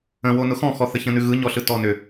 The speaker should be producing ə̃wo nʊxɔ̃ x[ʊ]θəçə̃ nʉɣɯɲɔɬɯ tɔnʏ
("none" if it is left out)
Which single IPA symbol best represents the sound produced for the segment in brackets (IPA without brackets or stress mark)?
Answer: ɔ